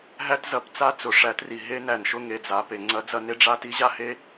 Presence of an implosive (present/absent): absent